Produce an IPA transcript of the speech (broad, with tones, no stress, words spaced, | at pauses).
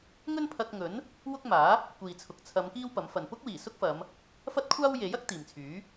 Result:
ŋɵ˥npʰɐ˧k̚ŋɵ˨˥n | wʊ˥k̚maː˨˥ | kʷiː˨ t͡sʰʊ˨k̚t͡sʰɐ˨˧m kiː˥wpɐ˨˥mfɐ˨n pʊ˥k̚wiː˨˩ sʊ˥k̚fɐ˨˧m | fɐ˥t̚kʷʰaː˥w je˨˥jɐ˥k̚ t̪iː˨mt͡sʰyː˨˥